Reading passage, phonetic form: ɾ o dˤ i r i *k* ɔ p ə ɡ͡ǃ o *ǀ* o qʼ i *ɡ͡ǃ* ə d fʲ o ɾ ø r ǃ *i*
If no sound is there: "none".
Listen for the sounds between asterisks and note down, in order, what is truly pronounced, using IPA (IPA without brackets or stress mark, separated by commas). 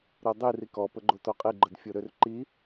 k, t, ɡ͡ǃ, i